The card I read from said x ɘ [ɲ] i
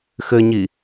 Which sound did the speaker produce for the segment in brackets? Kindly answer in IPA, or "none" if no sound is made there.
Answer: ɲ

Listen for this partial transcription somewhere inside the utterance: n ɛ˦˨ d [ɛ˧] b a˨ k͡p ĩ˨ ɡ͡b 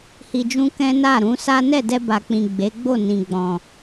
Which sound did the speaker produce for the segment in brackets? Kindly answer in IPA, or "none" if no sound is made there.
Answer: ɛ˧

